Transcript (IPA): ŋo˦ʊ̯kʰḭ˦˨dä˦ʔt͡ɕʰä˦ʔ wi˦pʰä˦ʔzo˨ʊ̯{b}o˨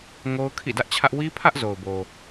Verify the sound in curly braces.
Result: correct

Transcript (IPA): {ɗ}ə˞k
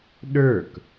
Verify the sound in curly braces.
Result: correct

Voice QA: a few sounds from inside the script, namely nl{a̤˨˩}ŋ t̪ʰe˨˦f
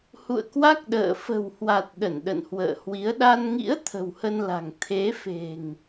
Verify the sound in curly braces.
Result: correct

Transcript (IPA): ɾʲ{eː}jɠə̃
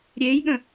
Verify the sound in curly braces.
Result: correct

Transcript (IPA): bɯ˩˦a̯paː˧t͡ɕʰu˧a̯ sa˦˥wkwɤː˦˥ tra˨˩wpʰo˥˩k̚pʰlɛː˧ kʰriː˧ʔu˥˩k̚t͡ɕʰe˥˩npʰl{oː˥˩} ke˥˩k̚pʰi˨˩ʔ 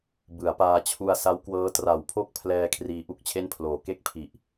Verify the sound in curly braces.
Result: incorrect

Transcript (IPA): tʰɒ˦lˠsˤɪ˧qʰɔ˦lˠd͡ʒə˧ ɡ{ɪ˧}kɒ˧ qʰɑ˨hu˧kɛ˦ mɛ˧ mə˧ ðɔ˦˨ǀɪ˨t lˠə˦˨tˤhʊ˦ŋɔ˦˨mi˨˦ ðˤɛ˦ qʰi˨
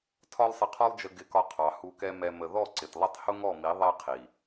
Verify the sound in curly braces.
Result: correct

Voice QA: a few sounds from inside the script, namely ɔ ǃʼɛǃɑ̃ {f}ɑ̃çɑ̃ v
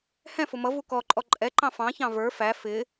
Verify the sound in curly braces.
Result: correct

